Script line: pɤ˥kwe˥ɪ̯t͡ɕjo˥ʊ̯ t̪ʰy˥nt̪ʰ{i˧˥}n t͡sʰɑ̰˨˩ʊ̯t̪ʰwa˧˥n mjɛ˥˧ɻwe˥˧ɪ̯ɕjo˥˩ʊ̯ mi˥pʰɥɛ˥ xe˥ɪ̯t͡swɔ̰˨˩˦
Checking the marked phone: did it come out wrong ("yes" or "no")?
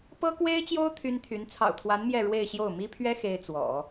yes